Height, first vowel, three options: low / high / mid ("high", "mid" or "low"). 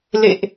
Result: mid